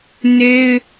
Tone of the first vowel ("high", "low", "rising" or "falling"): high